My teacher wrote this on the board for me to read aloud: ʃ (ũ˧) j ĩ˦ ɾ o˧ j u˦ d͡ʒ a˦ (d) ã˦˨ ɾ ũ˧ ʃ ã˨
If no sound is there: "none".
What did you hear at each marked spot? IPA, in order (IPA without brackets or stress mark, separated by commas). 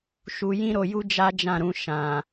u˧, d͡ʒ